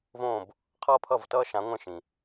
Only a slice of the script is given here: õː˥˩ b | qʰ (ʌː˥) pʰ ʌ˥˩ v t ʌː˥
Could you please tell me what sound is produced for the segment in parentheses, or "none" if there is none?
ʌː˥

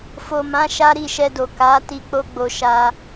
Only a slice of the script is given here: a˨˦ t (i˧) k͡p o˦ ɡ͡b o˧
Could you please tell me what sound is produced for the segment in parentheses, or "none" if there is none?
i˧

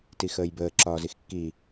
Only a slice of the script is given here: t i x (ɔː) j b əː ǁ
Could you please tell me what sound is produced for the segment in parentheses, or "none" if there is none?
əː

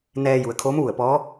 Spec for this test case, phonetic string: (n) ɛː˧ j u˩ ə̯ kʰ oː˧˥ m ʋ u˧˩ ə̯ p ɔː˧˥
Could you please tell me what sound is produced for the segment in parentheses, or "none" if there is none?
n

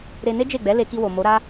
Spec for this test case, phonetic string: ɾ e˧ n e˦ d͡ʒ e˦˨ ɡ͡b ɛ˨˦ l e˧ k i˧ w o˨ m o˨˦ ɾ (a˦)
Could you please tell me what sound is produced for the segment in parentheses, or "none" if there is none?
a˦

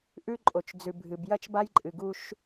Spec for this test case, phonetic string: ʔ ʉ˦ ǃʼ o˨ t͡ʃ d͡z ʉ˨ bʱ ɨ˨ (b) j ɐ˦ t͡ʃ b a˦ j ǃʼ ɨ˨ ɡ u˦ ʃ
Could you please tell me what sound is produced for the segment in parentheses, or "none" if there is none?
b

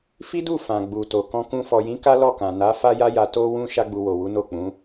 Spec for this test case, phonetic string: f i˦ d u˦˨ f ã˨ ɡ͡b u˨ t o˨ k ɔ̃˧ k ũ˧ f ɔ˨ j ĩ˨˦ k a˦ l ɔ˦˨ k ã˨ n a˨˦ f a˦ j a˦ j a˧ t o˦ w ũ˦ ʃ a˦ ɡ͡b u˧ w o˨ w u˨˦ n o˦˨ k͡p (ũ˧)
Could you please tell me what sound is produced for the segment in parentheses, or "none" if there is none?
ũ˨˦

